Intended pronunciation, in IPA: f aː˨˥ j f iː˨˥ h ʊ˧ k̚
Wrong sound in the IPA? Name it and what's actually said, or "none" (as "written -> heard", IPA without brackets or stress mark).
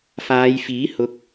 aː˨˥ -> aː˨˧